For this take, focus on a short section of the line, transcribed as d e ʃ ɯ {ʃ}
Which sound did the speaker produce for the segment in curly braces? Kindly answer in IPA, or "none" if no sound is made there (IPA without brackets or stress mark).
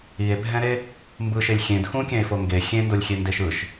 ʃ